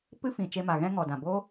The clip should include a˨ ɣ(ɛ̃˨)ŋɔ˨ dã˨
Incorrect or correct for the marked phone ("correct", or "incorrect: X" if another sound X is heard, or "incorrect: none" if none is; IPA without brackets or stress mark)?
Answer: incorrect: ɛ̃˦